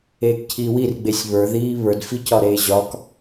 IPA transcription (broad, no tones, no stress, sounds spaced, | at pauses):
eː k cʰ iː w i r ɡ͡b e sʲ β ə˞ ð iː β ə˞ d f i c ɒ ɾ eː ʑ ɒ k